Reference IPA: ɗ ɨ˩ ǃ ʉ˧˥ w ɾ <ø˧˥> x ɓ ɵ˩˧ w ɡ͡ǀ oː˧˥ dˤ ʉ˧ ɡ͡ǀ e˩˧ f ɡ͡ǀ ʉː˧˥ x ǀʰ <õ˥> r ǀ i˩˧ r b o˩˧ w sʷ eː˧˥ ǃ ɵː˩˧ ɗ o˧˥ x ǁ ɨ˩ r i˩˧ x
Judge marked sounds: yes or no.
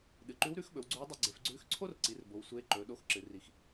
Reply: no, no

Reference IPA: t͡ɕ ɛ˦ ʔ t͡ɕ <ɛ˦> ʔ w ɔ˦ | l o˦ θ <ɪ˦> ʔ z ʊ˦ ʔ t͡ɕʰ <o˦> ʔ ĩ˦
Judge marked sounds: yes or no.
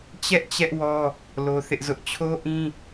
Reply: yes, yes, yes

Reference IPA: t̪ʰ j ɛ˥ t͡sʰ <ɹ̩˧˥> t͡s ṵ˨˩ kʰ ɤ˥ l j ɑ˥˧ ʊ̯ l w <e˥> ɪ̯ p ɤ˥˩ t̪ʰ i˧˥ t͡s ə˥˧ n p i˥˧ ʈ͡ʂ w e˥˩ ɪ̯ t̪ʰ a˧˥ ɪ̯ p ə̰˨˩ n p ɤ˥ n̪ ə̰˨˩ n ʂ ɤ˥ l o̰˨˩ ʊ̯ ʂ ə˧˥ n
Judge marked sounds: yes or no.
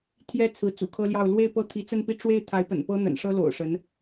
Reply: yes, no

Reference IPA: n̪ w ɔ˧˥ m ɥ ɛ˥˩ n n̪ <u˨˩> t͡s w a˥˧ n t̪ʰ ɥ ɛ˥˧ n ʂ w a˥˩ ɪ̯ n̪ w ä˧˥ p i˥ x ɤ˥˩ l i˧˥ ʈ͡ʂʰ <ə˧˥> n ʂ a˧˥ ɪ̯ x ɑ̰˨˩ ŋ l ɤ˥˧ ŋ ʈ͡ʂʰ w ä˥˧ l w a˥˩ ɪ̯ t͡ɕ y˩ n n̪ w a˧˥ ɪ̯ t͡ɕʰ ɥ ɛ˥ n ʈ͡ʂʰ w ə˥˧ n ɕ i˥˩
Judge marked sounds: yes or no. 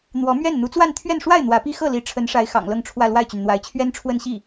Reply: no, yes

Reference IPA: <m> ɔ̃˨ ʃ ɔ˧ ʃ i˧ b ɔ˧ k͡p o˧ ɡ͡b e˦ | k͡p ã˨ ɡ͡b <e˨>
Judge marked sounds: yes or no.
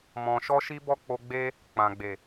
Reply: yes, yes

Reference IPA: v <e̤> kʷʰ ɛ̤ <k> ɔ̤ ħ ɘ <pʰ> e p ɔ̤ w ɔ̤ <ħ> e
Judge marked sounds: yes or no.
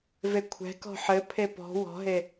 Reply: no, yes, yes, no

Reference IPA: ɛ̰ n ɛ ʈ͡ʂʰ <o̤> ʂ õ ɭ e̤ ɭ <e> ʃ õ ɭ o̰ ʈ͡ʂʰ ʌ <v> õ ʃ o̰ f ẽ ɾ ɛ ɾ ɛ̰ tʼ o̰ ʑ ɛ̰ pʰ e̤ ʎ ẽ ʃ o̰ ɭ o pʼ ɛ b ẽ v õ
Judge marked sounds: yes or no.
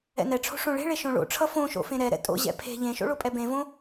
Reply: yes, yes, no

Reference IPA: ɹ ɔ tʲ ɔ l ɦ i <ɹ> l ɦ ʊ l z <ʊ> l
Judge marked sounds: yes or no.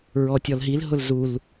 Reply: no, no

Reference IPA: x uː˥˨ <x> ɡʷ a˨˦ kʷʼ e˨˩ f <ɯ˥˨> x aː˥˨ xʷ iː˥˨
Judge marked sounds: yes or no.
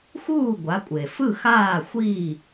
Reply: no, yes

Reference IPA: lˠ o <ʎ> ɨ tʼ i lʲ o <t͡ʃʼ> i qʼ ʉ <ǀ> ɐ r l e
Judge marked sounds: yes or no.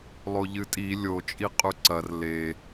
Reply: yes, yes, yes

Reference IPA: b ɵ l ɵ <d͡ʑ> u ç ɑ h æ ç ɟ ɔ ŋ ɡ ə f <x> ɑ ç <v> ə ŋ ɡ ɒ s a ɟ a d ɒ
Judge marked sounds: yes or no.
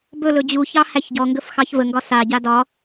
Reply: yes, yes, yes

